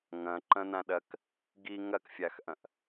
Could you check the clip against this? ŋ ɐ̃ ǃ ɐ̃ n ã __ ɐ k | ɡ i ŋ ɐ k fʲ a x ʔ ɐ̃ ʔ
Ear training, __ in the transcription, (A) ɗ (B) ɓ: A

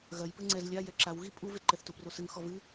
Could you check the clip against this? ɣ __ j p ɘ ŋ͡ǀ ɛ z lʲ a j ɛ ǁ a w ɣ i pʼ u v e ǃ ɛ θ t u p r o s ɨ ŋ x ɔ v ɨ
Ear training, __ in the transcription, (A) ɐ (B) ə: A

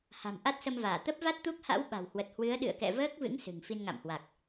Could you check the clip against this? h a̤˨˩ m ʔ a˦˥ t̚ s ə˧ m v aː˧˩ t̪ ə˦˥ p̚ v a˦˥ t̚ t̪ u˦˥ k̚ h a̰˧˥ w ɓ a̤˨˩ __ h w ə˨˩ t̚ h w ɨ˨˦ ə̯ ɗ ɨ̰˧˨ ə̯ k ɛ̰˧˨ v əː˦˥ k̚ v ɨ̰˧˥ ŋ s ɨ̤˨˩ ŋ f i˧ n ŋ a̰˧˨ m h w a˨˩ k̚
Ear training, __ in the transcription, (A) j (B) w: B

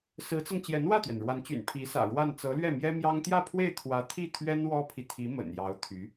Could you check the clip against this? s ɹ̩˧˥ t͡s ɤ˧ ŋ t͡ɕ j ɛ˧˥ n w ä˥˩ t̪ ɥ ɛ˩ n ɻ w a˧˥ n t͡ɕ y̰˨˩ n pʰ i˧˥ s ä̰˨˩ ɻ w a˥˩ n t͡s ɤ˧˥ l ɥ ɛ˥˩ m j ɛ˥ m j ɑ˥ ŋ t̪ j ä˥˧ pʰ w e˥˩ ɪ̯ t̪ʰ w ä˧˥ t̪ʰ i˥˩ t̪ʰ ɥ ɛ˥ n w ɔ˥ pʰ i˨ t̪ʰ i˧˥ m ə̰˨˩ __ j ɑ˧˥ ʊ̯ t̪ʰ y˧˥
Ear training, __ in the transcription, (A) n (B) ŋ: A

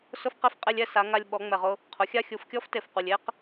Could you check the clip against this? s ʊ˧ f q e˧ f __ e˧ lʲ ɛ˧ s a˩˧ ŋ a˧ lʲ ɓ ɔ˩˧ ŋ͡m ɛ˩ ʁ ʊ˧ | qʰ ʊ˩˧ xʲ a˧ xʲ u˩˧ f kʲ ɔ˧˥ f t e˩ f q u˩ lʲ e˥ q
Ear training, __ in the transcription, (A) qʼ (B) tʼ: A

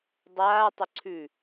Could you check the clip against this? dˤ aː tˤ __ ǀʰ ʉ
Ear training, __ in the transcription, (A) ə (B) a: A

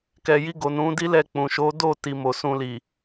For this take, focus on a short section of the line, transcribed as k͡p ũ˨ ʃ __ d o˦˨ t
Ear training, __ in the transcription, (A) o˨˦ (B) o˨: A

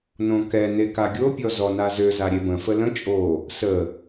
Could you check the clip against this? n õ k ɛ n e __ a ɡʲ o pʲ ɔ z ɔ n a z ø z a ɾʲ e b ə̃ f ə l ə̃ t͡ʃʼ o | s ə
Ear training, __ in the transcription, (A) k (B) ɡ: A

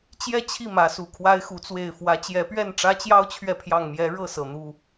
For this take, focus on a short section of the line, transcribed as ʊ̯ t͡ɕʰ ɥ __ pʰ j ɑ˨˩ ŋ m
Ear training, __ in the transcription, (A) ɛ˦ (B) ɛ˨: B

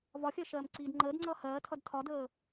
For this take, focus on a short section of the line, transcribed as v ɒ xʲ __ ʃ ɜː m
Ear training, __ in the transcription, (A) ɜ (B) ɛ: A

